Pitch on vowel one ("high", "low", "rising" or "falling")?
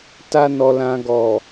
high